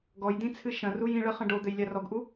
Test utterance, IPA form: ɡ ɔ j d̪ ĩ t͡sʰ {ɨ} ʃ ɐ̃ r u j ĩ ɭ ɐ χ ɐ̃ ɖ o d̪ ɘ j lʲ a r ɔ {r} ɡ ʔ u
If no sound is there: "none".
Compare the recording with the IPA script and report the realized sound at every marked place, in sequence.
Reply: ɨ, none

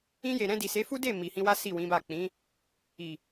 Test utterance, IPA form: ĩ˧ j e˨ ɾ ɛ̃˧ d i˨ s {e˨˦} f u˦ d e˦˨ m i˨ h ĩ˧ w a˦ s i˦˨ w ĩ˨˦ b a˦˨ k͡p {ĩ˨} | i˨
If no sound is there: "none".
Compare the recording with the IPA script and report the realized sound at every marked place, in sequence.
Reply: e˨˦, ĩ˨˦

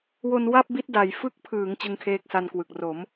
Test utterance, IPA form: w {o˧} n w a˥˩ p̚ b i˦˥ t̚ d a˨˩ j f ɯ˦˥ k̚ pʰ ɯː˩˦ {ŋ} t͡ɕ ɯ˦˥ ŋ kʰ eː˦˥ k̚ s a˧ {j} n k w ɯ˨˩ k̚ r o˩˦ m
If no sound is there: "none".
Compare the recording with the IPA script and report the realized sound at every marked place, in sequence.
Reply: o˧, ŋ, none

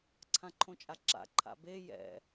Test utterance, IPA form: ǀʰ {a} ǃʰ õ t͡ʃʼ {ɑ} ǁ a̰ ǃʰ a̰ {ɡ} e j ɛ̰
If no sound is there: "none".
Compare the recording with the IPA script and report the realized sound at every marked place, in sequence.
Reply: ã, a, b

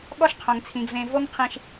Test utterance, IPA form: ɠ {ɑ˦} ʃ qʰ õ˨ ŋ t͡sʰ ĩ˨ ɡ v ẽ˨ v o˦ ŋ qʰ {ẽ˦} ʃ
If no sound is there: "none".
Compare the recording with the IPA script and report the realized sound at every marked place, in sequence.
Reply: ɔ˦, ĩ˦

